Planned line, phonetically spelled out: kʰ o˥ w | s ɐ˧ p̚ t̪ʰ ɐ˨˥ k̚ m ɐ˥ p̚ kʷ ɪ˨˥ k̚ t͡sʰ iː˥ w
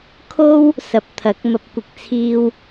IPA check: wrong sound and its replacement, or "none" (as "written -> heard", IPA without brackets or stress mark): none